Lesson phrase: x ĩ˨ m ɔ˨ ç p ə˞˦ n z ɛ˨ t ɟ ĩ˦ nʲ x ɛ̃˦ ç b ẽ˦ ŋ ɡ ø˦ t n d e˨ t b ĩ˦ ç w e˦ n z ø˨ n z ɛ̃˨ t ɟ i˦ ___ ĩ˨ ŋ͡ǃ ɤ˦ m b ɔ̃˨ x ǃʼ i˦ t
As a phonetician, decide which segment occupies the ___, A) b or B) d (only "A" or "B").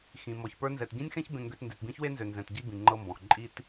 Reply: A